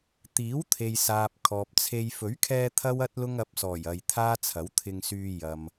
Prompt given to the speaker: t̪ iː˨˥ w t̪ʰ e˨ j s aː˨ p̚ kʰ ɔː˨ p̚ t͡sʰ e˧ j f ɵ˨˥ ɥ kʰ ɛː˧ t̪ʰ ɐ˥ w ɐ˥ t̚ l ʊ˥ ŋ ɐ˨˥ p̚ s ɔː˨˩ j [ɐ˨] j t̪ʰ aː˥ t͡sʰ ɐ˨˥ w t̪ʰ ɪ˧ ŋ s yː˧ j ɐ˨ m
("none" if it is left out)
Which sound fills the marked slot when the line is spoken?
ɐ˨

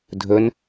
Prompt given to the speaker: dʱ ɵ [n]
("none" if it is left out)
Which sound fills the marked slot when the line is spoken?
n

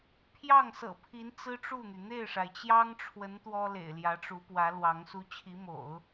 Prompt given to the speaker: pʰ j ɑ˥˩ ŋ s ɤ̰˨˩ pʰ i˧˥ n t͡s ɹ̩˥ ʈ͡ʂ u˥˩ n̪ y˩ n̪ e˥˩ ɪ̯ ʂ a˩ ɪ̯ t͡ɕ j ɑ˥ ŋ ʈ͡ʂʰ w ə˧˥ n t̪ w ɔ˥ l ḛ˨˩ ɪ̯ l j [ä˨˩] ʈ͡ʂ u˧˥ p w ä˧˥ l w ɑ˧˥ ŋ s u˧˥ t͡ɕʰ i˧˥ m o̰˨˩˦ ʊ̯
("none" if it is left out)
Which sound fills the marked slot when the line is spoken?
ä˧˥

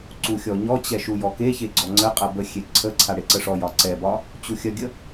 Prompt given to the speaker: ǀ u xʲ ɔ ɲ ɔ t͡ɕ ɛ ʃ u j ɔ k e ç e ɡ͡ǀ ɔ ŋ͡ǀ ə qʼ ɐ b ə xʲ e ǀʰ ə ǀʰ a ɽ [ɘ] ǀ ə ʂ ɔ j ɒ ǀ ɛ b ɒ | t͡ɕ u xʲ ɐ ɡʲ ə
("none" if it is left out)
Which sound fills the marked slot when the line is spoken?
e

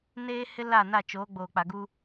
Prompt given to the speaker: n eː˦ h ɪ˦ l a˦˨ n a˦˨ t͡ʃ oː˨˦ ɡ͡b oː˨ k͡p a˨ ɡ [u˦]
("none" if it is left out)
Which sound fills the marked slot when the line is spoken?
u˦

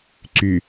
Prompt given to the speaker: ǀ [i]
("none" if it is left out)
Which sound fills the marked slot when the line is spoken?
y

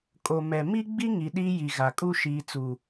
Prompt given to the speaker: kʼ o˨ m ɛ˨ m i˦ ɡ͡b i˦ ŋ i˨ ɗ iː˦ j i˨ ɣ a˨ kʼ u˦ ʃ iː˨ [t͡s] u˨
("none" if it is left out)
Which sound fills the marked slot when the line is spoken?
t͡s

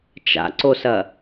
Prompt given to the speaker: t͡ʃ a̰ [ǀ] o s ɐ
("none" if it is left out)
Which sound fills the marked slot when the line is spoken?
ǀ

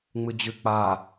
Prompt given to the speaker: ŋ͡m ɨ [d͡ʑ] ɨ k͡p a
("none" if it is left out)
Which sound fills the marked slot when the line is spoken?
d͡ʑ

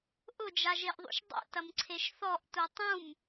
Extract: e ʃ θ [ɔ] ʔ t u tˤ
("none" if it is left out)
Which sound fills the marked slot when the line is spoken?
ɔ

